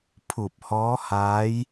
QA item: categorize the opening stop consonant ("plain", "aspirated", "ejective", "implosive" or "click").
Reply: aspirated